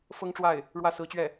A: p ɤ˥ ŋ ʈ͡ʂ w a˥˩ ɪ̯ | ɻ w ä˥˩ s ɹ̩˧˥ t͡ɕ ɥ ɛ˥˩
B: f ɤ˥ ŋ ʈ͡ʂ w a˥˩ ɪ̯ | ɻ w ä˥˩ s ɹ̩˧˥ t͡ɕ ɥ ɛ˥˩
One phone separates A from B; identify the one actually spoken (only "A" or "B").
B